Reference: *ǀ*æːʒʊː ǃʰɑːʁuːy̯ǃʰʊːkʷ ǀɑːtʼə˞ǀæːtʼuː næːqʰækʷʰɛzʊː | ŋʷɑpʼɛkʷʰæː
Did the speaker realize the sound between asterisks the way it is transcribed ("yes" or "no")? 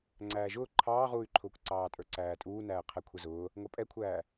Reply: no